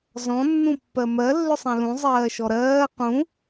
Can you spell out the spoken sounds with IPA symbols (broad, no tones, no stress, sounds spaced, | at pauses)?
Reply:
z ɔ̃ nː ũ pː ɜ m ɜ lː ʏ sˤ ɛ̃ l ũ zˤ ɜː ʃ ɔ ɾ ɜː q ũ